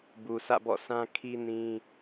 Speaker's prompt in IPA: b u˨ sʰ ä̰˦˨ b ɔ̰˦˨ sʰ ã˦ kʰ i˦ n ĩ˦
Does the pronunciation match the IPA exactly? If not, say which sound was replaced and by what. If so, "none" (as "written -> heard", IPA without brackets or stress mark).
none